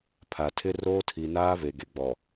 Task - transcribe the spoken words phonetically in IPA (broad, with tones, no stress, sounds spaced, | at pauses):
pʰ a˨ tʰ ɪ˦ r oː˦ tʰ i˨ n aː˦ v e˨ ɡ e˨ ɡ͡b ɔ˨